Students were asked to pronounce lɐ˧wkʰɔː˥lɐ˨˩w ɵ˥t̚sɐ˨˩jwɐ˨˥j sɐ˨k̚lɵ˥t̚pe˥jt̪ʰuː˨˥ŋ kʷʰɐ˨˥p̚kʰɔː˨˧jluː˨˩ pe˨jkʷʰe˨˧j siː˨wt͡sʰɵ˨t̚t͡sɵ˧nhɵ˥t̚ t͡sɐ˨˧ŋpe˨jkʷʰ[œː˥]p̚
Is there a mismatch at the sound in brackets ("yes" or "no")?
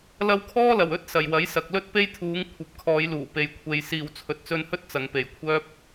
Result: no